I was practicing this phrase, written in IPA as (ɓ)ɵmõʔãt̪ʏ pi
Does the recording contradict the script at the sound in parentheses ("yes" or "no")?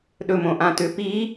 yes